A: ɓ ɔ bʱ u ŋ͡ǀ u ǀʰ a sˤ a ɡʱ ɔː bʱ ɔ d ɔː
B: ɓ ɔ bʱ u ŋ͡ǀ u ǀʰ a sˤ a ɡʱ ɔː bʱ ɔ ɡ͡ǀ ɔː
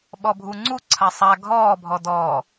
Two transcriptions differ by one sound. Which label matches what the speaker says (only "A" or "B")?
A